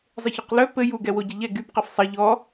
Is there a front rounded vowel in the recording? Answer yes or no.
yes